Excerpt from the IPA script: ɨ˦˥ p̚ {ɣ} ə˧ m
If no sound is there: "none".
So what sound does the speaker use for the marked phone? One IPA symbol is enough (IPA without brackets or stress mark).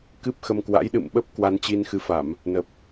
x